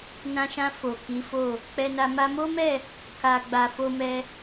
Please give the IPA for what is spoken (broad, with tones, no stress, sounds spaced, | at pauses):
n ã˧ ʃ ã˧ f o˨ k i˨˦ f o˦˨ | k͡p ɛ˧ n a˧ m a˧ m o˦ m ɛ˦˨ | k a˧ ɡ͡b a˧ f o˦ m ɛ˦